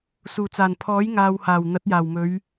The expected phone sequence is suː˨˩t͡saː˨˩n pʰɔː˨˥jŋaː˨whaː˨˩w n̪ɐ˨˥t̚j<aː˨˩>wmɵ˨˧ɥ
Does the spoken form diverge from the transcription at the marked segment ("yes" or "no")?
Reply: no